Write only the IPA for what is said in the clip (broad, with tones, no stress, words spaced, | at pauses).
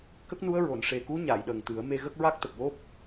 kə˦˥k̚nu˧˥ə̯ɹo˨˩˨n ʂe˨˩ku˧˥ ɲa˨˩˨jɗə˨˩ŋt̪ɨ˨˩˦ə̯ me˧ɣə˦˥k̚ɹa˦˥k̚t̪ə˨˩k̚ wo˦˥p̚